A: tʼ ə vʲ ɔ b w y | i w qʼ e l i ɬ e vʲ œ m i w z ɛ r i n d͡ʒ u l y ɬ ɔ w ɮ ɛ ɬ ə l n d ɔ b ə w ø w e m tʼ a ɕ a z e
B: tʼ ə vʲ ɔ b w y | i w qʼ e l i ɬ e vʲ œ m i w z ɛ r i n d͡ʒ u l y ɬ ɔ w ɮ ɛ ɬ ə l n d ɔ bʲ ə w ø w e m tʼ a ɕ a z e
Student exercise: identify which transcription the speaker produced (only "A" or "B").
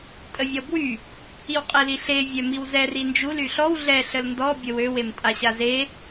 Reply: B